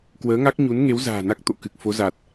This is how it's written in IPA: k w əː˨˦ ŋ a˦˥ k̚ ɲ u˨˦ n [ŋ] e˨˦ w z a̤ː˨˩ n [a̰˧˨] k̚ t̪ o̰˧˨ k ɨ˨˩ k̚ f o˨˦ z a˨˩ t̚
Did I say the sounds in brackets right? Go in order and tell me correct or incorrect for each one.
correct, incorrect: a˦˥

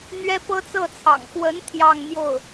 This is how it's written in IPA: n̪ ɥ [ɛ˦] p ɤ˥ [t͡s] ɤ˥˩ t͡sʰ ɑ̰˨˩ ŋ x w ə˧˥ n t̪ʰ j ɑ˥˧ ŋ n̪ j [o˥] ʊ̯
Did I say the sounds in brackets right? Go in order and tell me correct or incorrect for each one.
incorrect: ɛ˥, correct, incorrect: o˥˩

